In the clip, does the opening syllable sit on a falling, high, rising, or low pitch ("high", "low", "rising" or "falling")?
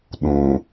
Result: low